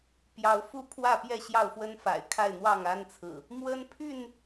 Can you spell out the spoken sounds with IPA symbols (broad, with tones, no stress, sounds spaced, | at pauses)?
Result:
p j ɑ˨˦ ʊ̯ f u˥˨ pʰ w ä˥˨ p j ɛ˥˨ ɕ j ɑ˥˨ ʊ̯ f w ə˦ n f a̰˨˩ ɪ̯ kʰ a˥˨ ɪ̯ n̪ w ɑ˥˨ ŋ a˦ n t͡sʰ ɹ̩˨˩ | m w ə˦ n pʰ y˥˨ n